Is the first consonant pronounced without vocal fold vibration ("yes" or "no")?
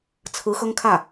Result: yes